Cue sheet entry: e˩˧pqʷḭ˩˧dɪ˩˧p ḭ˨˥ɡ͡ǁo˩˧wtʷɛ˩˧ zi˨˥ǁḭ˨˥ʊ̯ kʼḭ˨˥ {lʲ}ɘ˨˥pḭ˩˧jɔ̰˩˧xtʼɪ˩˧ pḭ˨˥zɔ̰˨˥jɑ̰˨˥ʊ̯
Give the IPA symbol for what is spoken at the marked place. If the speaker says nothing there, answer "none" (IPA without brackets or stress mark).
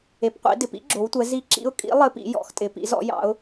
lˠ